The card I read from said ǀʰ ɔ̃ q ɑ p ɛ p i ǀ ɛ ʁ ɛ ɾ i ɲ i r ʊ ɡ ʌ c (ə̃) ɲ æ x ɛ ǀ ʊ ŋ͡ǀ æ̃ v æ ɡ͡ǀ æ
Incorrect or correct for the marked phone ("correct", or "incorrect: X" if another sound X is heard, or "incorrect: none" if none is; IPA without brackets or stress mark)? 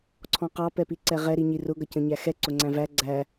correct